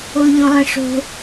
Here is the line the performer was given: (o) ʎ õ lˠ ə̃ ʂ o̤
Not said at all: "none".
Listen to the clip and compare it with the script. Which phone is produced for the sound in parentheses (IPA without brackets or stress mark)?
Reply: o